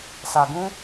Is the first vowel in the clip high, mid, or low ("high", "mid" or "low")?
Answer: low